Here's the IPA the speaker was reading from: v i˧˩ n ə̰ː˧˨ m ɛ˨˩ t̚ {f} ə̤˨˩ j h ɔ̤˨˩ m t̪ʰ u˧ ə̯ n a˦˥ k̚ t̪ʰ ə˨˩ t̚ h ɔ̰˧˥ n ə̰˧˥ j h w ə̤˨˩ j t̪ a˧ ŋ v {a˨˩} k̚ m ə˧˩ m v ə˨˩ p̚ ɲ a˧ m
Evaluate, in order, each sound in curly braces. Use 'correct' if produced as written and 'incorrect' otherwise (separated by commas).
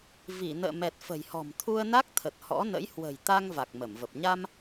correct, correct